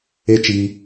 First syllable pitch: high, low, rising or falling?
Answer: high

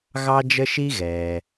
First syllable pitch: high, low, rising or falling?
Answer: high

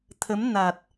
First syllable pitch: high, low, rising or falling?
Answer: rising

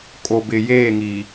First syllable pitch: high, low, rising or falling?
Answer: low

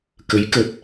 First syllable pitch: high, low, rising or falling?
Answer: rising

